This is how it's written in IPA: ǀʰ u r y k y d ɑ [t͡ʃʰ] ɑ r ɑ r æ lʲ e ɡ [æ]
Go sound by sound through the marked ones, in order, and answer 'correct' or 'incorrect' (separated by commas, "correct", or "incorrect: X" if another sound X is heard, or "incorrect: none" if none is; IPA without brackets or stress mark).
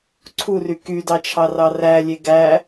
correct, correct